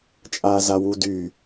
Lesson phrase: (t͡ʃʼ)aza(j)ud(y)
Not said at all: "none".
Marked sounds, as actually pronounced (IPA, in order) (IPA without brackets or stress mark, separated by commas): t͡ʃʼ, w, y